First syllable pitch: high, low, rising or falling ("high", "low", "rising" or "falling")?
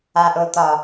low